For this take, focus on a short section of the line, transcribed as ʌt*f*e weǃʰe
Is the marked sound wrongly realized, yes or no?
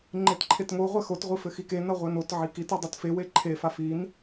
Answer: no